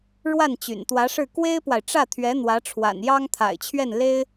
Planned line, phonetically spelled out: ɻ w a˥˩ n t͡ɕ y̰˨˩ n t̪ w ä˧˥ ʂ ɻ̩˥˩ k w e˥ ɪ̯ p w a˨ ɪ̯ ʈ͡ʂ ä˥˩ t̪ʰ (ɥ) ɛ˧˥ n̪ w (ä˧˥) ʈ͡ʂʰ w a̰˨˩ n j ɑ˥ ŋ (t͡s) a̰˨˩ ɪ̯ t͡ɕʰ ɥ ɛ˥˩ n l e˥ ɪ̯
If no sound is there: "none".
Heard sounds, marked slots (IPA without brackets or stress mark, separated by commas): ɥ, ä˧˥, t̪ʰ